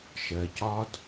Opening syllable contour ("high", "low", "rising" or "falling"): low